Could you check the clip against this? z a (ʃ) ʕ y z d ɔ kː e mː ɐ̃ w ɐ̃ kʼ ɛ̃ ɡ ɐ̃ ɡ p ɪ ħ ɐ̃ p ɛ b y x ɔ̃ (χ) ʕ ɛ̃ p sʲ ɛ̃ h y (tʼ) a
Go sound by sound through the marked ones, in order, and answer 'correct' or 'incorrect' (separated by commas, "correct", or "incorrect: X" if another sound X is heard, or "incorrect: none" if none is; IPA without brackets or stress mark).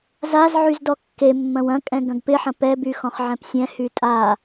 incorrect: z, correct, correct